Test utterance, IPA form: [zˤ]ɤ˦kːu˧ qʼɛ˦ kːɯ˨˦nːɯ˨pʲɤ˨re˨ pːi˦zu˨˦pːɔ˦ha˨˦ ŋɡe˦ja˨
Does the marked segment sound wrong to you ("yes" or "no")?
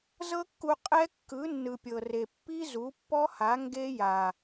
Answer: yes